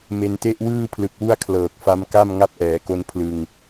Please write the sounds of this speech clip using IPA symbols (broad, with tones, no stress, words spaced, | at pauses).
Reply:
me˧nte˥˩ʔ wɯː˥˩pʰlɯ˨˩k̚wu˥˩a̯ kʰlɤː˨˩k̚fa˦˥mka˥˩m ŋa˦˥p̚ʔɛː˩˦ko˧n pʰlɯ˧ŋ